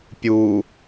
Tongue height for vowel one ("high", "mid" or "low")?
high